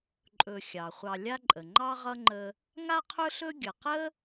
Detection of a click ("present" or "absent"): present